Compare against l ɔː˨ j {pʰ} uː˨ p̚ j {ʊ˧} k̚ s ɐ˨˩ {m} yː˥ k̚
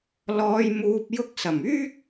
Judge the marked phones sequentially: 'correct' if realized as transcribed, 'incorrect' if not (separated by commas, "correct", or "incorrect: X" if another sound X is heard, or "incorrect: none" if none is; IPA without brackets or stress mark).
incorrect: m, correct, correct